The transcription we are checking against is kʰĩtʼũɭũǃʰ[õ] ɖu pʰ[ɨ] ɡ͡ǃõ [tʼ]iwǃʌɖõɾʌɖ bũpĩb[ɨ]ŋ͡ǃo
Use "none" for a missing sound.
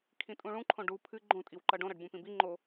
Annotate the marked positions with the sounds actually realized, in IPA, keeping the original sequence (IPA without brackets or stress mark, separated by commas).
õ, ɨ, tʼ, i